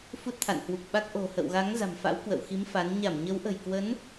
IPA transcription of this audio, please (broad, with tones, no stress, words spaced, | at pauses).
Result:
fu˦˥t̚t̪ʰa̰˧˨nhwu˨˩k̚ɓa˦˥k̚ ʔo̤˨˩hə̰˧˨w ɣa˨˦ŋza̤˨˩mfa̰˧˥w kwə̰˧˨wxi˨˦m fa˨˦n ɲa˧˩mɲə˨˦wʔə̤˨˩jkwə˨˦n